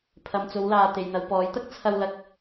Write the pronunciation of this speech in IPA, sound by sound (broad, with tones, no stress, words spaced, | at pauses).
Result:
pʰɐ˨mt͡so˨˧wlaː˨ t̪e˨jn̪ɐ˨˧wpɔː˨˥jt̪ɐ˥k̚ t͡sʰɐ˧wlɐ˨k̚